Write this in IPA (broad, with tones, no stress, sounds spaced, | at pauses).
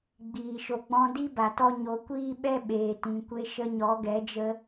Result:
ɡ͡b iː˨ ʃ o˨ ɡ͡b ɔ̃˧ d i˦ b a˨ t ɔ˧ ɲ o˨˦ kʷ iː˦ ɓ ɛ˦ ɓ eː˨ t ĩ˨ kʷ e˧ ʃ ə˧ ɲ ɔ˨˦ ɡ ɛ˨˦ d͡ʒ ə˧